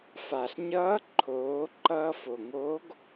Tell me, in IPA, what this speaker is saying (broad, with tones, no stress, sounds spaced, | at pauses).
f a˩ ɬ ɲ ʌː˧˥ ǃʰ oː˩˧ ǃ ʌː˧ f o˩ ŋ oː˧˥ ɡ